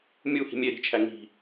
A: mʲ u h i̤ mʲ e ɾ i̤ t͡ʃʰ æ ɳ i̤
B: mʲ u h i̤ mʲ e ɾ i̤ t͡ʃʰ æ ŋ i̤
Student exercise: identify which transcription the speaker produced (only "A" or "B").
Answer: B